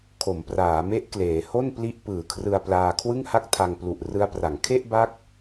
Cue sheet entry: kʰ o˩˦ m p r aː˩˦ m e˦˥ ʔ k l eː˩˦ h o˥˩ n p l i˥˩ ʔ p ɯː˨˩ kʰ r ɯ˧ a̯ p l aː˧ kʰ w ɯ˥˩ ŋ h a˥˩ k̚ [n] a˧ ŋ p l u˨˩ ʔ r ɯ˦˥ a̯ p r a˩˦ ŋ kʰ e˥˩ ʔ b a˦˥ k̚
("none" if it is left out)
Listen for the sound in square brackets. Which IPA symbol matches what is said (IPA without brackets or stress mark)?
tʰ